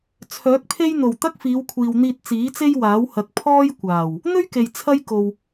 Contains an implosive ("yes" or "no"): no